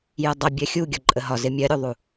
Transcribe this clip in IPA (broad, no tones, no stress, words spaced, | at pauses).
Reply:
jɛdˤə bʲɜxʲu ɡʲɒǃʼəɦɒ zɪmʲɜɾʲuðˤu